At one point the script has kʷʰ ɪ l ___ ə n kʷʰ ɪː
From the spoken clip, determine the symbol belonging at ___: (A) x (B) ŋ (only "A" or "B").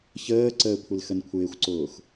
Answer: A